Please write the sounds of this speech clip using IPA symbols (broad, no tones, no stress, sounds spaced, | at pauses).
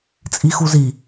t͡sʼ i x u z i